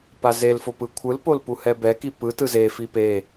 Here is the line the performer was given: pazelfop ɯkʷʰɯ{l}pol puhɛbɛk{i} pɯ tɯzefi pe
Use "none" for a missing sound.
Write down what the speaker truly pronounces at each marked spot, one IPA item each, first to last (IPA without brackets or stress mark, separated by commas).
l, i